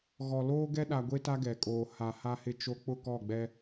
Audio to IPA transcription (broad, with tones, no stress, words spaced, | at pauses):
ɣɔ˨loː˦ ɡɛ˦ɗa˨ɡʷe˦ ta˦ɡɛ˨kʼoː˨ ha˨ ha˦hɪ˦ t͡ʃo˦ k͡pʊ˦˨kɔ˦˨ɡ͡bɛ˦